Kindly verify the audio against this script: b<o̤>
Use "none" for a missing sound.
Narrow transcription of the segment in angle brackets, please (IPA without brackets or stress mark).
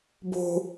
o̤